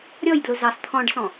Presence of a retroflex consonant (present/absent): present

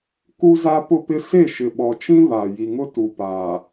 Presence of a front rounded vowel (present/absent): absent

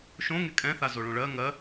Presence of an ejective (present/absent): present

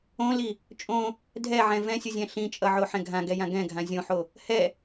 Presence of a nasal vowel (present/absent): present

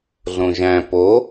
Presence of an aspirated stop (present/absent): absent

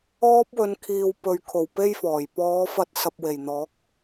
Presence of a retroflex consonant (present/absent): absent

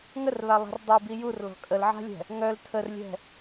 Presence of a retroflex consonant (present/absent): absent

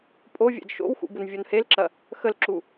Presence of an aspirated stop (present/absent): absent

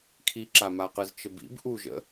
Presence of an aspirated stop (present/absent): present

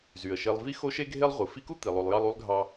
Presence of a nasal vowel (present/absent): absent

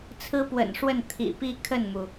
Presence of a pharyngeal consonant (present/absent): absent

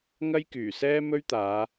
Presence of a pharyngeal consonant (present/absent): absent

